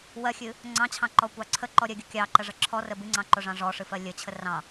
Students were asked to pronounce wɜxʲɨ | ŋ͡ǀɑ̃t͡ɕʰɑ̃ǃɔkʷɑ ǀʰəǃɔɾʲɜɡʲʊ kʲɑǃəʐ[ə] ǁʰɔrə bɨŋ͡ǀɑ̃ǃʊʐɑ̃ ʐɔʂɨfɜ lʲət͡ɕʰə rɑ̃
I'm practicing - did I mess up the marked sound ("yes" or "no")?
no